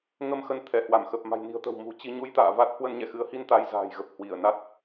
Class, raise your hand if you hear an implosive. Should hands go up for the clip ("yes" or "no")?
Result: no